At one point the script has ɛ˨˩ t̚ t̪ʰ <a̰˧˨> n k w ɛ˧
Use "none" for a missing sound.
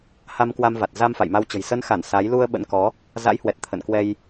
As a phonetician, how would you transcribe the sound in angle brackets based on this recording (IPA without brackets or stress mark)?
ə̰˧˨